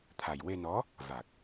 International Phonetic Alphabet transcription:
t̪ʰ a˨˩ j w e˧ n ɔ˧˥ | v a˨˩ k̚

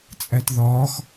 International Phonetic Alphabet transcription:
t͡sʼ æ t ð ɒː x

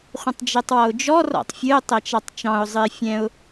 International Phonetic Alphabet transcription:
χʷ ə̃ tˤ d͡ʒ ɛ tˤ w ɔ ʊ̯ d͡ʒ ɔ r ɔ̰ tˤ fʲ ɨ ʊ̯ tˤ ɛ t͡ʃ ɑ tˤ t͡ʃ ɑ̃ ʊ̯ zˤ ɨ ɪ̯ fʲ ɛ̃ ʊ̯

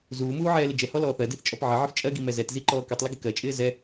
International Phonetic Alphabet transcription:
z uː m uː ʕ ɛː l ɪ d͡ʒ ɛ h ɔ l ɔː θ ɜ d i θ t͡ʃʼ ɔ p ʕ ɪ ʕ ɪ f t͡ʃʼ ɜ ɡ i m ɛ z ɛ t z i ǃ ɔː k u tˤ l ɪ ɡ ɪ k ɜ t͡ʃʼ ɪː z ɛ

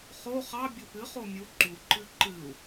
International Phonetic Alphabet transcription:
χ o χ ɑ bʲ o p ɨ χ o mʲ u ǃ u ǃ ɨ ǃ ɨ u̯

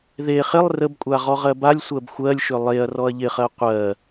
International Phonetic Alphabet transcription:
ð e χ ɪ lˠ r ə b kʷʼ a ʁ ɔ ʁ ɜ b a lʲ sʷ ɜ b xʷ ɜ lʲ ʃ ʏ lˠ e ɐ̯ r ɔ ɐ̯ ʎ ɪ χ ɜ qʷ ɜ

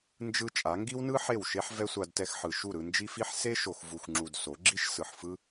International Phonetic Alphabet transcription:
n d͡ʒ ɯ˧ t͡ʃʼ a˨˦ ŋ ɡ i˦ w n ɯ˦ ħ e˦˨ w ʃ e˦ ħ v ɛ˦ sʷ a˧ d t ɛ˧ x ħ ɯ˨ ʃ u˦˨ ɾ ɯ˧ n d͡ʒ i˦ f i˦ ħ s e˦ ʃ o˨ x v u˨ x ŋ͡ǁ u˨ d s o˨˦ ɡ͡ǁ i˦ ʃ s ɯ˨ ħ f ɯ˦

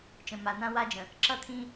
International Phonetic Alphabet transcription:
t͡ʃ ə̃˨ m a˨ n̪ ã˦ w a˦ d͡ʒ ə̃˨ | ǁ ʌ˦ t̪ʰ ĩ˦

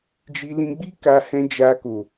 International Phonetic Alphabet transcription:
d͡ʒ i˧ l ĩ˧ ɡ͡b i˦ k a˧ h ɛ̃˧ d͡ʒ a˧ k o˨

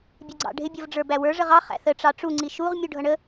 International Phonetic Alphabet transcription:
bʲ ɛ ɡ͡ǀ ɑ̰ ɖʱ ɪ bʲ ʌ v ɖ͡ʐ ə˞ b æ w ə˞ ʐ ə ʁ ɑ χ æ̰ θ ə ʈ͡ʂ ɑ ʈ͡ʂ u ŋ͡ǀ i ʃ u ʁ mʲ u ɖʱ ʌ ɳ ə

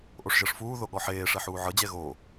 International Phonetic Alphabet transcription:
ʔ o ʂ ʒ ɤ ʂ f uː ð o ɠ ɔ ħ eː ʂ ɛ ħ uː ʕ ɤ d͡ʑ ɛ ɣ o

